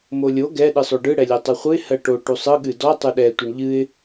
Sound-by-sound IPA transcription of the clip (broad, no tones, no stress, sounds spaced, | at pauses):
m o lʲ o ɡ ɛ ɗ ɨ sˤ o ɖ ɯ ɽ ɛ lʲ ɜ tˤ u χʷ ɨ ɪ̯ h ɜ ʈ o ʈ u sˤ ɯ ɠ ɨ d ɔ tˤ u ɗ ɛ tʷ ɨ ɳ ʎ ɨ ɪ̯